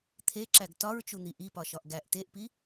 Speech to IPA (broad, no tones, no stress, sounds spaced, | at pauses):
t̪ʰ e ǁ æ ɡ t ɒ ɹ t͡ʃ u n̪ i ʔ i p ɒ ʃ ɒ ʔ ɡ æ ʔ t e ʔ p i